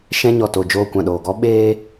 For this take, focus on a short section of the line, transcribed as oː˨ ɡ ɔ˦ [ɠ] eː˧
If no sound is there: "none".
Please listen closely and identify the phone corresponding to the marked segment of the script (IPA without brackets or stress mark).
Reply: ɓ